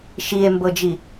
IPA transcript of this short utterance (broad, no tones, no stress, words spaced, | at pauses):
ʃie̯mbɤd͡ʒi